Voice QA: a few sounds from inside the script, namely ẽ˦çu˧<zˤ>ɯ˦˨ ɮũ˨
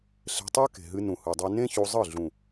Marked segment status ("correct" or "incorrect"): correct